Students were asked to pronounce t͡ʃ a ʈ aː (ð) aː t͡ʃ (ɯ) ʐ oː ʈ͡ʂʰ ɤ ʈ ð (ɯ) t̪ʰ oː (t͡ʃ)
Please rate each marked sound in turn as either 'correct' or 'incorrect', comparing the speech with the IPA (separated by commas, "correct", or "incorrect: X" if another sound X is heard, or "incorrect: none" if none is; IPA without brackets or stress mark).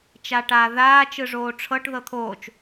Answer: correct, correct, incorrect: ɤ, correct